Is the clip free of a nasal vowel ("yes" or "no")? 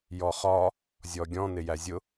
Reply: no